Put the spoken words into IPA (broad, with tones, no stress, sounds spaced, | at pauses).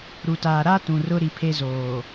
ɾ u˨ t aː˨ ɾ a˦ t ũ˨ r ʊ˦ ɾ i˨ pʰ e˦ z oː˨